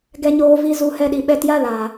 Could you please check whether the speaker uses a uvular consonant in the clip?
no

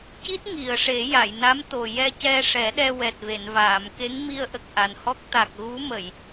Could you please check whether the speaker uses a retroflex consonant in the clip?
yes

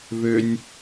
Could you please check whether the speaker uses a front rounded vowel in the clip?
yes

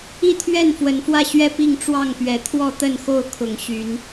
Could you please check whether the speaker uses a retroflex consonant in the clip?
yes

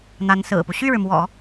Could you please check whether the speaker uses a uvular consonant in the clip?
no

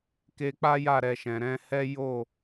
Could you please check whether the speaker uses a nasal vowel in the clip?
yes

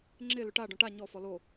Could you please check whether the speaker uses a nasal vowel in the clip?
yes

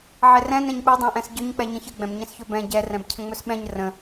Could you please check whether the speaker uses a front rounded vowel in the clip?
no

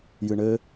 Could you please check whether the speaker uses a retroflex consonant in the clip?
yes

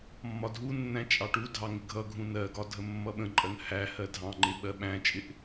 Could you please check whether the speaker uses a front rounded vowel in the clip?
no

